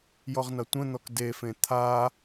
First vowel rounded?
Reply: yes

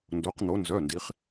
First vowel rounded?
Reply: yes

